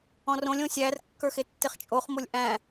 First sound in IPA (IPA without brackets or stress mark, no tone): ɔ̃